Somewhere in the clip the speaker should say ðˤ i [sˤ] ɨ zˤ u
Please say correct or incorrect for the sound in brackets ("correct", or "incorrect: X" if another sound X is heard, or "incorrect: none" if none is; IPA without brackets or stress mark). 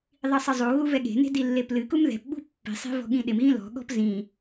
correct